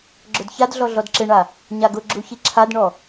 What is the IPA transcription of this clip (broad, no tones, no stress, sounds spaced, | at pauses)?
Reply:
ɡ͡ǁ ʊ d ç a d ɮ ɔ ɮ ɔ d ǁ ɪ ɳ a | ɲ a ɡ ʊ ɡ͡ǁ u ç i ǁʰ a d ɳ ɔ